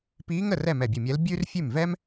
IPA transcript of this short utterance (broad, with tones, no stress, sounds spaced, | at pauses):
p iː˧˥ ŋ ə˥˩ r ɛ˥˩ m ɛ˧˩ bʲ ɨ˧˩ mʲ ɛ˧˥ l bʲ ʉ˥ r fʲ ʉ˥˩ m v ɛ˥ m